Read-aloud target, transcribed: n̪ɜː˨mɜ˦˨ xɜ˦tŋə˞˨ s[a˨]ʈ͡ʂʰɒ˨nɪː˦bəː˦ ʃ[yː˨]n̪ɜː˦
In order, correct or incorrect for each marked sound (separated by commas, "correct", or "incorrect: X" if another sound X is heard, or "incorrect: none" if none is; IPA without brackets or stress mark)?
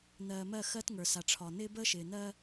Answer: correct, incorrect: ɪː˨